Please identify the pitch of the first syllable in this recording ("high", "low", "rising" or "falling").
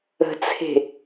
low